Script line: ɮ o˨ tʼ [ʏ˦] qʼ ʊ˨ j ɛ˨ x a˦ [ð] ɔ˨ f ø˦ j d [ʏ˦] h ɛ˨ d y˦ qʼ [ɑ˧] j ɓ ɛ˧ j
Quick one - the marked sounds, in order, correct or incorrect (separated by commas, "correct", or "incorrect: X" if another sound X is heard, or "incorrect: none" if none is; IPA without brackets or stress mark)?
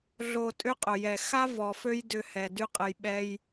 correct, incorrect: v, incorrect: ʏ˧, incorrect: ə˧